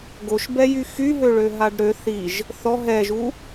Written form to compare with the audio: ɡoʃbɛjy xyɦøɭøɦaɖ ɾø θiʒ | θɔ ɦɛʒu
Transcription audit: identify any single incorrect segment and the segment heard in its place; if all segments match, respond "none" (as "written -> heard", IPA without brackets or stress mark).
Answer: none